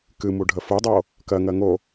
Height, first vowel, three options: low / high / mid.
high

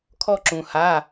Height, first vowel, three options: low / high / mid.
mid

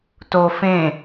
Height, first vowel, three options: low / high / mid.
mid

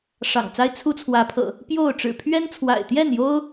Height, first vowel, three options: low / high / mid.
low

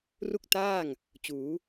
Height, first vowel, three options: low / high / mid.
high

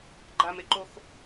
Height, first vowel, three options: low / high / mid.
low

